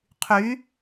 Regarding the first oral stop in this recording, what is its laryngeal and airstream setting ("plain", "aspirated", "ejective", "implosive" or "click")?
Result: aspirated